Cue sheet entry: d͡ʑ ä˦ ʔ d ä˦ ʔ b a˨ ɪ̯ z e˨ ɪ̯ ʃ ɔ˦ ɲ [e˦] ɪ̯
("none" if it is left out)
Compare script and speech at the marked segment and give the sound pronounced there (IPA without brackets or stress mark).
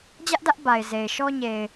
e˨